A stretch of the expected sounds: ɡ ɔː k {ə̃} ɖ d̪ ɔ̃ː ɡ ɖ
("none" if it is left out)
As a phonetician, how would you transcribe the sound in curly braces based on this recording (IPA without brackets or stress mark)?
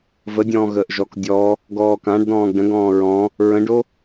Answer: ã